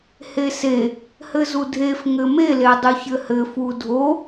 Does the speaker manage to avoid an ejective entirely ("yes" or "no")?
yes